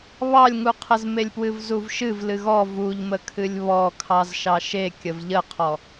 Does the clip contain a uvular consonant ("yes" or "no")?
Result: yes